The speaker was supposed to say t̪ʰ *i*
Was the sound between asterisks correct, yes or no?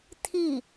yes